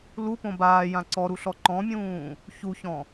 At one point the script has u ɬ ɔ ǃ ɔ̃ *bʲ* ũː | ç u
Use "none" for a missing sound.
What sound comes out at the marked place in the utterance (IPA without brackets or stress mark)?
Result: mʲ